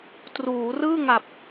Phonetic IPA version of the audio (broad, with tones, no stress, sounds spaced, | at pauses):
t r uː˩˦ r ɯː˥˩ ŋ a˨˩ p̚